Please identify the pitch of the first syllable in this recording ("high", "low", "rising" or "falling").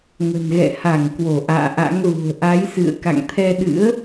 low